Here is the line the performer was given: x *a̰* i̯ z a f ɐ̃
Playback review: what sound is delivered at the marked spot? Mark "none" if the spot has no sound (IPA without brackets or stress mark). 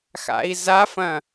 a̰